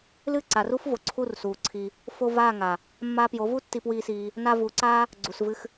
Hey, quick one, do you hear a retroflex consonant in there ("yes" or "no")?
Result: no